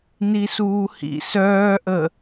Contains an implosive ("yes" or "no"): no